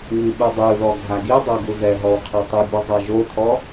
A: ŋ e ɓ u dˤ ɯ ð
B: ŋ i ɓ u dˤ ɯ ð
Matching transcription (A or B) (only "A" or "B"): B